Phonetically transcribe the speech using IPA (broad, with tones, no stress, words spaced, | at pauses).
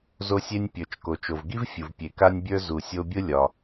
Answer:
zo˧sʲe˧nʲpʲə˞˩t͡ʃ ko˩t͡ʃo˩vɡi˥vfʲu˩v pʲe˩ka˧nʲbʲə˞˧ zu˩sʲo˧bʲʊ˥ lʲɒ˩